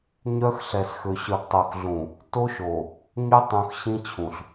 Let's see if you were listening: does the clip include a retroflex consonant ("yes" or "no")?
no